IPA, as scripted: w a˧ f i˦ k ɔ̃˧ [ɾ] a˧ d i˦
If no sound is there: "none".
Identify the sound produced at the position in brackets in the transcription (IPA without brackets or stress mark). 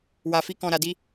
ɾ